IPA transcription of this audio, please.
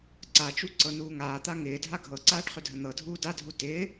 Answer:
ǀat͡ʃu ǀɤnuːŋaːt̪a ŋɪː dʱaɡʱɤǀaːɖ χʏdʱən̪ɤdʱuː dadʱu tɪː

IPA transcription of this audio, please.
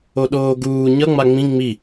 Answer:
oɗoːɡuː ɲʌ ŋ͡maŋ͡mĩ ŋ͡mi

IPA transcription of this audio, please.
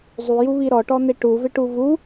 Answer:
zˤujuβi ɾɔʈɔn̪e ʈuvɪʈu vu

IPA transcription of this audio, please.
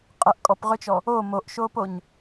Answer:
qʼəʔ kʼɔpʁøt͡ʃɔ | o moʔʃoːpoɲ

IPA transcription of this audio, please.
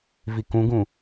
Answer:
vikũɡũ

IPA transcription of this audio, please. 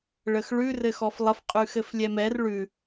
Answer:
ɭəxɭʉ rɘxɔflˠəf qʼʉxɘflʲɛmɛr ɭʉ

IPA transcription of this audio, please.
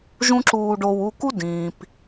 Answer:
ʒũ˥ǁuː˧ɖo˧w u˧ku˥ dĩː˩p

